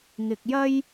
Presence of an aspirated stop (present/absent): absent